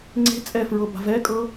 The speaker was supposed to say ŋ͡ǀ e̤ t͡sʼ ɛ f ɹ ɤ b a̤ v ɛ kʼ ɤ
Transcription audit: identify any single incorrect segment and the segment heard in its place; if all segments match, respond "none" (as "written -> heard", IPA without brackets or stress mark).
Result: none